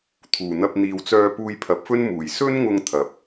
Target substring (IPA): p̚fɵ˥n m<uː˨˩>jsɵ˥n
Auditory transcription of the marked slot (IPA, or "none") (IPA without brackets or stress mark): uː˨˩